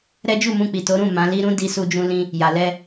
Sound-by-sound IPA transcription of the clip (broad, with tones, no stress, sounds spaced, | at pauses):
ɾ ɛ˦ d͡ʒ u˦˨ m ũ˧ k͡p i˨ t o˨˦ ɾ ũ˦˨ m ã˨˦ l i˧ ɾ ũ˦ d i˧ s u˧ d͡ʒ ũ˧ l ĩ˦ | j a˨ l ɛ˧